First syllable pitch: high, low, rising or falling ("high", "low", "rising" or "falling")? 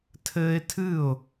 high